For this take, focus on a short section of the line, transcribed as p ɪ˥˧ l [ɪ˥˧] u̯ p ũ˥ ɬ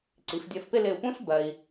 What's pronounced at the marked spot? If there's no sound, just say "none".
ɪ˧˩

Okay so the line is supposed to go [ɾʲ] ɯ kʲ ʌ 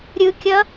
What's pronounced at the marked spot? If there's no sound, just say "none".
ɾʲ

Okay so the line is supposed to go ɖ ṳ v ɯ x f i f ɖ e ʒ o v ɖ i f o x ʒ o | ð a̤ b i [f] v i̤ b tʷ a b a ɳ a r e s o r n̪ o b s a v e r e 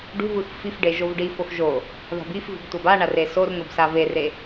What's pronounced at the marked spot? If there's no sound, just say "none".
f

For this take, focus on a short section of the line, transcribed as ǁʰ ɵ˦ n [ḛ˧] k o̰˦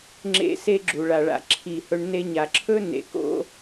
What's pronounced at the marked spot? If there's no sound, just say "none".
ḛ˨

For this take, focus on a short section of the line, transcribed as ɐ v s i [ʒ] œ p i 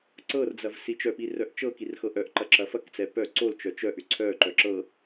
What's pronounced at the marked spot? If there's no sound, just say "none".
t͡ʃ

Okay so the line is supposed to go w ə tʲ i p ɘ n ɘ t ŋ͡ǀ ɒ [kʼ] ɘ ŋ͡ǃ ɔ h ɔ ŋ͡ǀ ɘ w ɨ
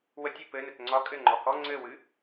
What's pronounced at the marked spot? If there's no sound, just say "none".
kʼ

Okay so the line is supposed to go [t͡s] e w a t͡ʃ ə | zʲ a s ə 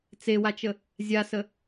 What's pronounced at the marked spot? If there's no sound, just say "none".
t͡s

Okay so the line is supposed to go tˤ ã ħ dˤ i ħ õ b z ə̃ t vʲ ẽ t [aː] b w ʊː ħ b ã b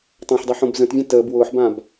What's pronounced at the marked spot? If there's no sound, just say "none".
əː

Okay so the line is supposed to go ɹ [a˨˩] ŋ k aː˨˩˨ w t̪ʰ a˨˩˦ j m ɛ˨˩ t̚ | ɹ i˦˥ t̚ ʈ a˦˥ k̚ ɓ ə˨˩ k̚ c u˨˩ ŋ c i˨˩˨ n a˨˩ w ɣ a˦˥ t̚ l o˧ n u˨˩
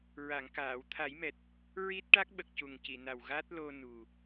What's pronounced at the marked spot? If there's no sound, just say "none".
a˨˩˨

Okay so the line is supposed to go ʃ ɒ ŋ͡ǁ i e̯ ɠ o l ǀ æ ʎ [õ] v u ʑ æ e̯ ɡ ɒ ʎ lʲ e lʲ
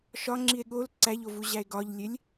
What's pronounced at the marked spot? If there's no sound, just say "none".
o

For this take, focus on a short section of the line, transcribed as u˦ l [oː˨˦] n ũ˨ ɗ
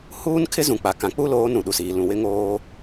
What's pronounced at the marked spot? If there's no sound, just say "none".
oː˨˦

